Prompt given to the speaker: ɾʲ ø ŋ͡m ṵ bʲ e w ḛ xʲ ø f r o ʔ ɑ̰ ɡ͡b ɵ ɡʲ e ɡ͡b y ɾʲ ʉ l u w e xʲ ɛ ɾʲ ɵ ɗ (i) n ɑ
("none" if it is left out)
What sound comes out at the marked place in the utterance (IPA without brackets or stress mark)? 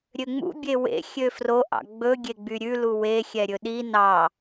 i